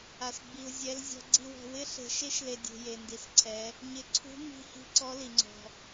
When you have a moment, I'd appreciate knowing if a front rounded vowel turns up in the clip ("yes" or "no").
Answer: no